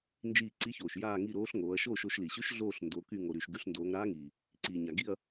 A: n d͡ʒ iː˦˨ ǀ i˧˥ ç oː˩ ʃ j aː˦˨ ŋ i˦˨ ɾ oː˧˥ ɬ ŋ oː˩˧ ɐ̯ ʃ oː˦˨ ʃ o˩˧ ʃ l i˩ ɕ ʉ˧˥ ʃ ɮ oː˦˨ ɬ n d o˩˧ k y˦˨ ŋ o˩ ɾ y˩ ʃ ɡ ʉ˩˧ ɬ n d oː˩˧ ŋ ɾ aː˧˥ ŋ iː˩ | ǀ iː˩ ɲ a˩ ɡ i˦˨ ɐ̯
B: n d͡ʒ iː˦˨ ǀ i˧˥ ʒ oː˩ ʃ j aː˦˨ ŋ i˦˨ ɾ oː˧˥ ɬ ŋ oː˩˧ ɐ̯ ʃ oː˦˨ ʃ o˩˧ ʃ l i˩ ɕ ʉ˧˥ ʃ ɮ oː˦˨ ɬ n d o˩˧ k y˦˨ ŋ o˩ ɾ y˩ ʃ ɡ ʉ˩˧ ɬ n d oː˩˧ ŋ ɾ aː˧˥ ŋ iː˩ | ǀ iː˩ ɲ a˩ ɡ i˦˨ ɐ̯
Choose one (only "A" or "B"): A